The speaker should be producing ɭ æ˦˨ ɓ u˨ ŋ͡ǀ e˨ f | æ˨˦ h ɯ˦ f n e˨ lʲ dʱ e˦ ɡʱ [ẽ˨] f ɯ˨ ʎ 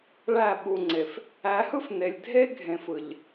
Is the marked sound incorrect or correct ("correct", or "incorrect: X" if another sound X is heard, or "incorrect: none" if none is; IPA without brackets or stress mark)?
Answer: correct